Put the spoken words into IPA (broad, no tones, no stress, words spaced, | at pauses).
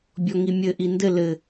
bʲɔŋimʲɘ ʔindɘ lɘ